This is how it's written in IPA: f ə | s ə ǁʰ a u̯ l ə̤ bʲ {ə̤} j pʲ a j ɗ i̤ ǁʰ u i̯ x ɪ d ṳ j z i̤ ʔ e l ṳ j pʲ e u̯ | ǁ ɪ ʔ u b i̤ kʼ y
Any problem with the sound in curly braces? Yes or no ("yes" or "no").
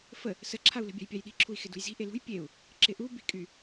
yes